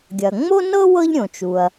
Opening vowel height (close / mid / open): open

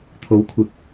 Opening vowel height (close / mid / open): mid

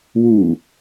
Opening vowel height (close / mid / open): close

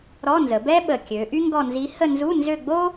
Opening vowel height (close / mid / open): mid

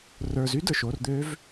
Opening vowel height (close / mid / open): mid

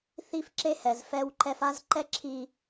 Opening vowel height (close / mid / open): close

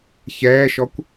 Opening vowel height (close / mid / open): mid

